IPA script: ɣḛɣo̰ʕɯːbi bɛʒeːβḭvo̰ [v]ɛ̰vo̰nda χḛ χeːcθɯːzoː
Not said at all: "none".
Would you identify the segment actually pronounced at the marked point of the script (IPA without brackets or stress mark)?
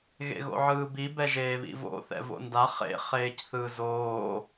θ